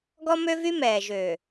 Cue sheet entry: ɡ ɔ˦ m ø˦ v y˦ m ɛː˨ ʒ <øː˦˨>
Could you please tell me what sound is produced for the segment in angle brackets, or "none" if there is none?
øː˨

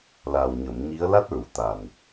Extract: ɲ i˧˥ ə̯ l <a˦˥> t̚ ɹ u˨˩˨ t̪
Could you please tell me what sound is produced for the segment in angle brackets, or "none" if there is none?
a˦˥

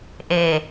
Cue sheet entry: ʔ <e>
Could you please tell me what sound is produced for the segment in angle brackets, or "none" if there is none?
e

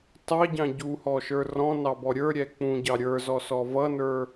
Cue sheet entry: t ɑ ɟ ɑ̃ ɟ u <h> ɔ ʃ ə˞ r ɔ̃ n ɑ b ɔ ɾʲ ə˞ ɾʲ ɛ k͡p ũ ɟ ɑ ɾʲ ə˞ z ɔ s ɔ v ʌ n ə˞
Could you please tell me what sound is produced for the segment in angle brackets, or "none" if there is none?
h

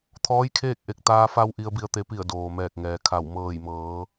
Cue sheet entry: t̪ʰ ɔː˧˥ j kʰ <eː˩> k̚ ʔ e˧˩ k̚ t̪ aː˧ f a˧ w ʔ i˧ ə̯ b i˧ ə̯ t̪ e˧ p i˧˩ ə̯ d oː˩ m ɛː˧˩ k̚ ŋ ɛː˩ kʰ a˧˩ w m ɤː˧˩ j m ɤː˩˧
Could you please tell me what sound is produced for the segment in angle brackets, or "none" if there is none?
eː˥˨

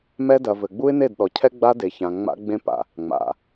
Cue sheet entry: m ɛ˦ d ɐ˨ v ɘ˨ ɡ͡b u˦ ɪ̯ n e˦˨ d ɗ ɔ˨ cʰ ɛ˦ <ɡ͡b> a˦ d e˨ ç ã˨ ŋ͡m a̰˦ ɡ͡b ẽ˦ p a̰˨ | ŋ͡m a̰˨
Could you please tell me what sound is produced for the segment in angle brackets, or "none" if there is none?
ɡ͡b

